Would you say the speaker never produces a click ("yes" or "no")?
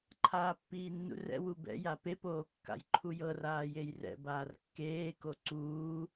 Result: no